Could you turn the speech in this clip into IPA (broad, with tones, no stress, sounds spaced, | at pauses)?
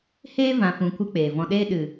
h eː˦ v ã˨ f ũ˨ kʷ ɨ˧ k͡p eː˨ v ɔ̃˧ ɗ eː˦ ɗ ɨ˨